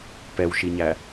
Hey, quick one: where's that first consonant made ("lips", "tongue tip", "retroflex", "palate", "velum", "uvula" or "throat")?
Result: lips